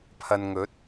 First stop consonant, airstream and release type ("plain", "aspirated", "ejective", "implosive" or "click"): aspirated